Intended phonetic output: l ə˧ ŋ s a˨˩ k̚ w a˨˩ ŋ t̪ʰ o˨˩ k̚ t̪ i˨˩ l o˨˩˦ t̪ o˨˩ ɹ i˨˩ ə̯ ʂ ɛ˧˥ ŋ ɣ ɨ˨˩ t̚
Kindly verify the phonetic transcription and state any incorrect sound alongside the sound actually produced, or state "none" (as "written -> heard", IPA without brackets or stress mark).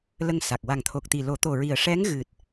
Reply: none